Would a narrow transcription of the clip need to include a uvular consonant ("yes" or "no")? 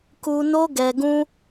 no